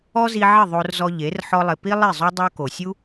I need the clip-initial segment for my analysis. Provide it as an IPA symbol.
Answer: ɔ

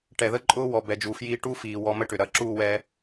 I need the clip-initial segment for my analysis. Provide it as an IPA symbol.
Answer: ʈ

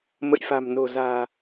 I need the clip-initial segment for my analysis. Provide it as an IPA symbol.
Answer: m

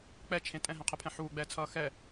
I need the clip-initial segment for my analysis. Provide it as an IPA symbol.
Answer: k͡p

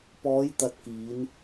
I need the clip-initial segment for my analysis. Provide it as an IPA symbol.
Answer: p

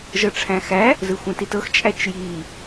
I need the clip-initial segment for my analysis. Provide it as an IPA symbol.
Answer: ʒ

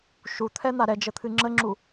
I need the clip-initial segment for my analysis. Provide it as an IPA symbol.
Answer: ʃ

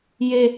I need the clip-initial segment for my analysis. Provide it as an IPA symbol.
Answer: j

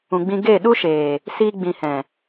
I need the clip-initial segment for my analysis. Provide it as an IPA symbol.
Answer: ũ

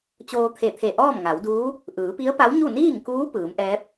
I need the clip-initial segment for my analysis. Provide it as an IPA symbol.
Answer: t͡ɕ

